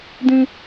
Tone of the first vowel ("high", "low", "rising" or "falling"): high